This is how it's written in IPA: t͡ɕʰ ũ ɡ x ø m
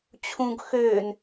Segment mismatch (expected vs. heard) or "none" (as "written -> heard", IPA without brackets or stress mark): m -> n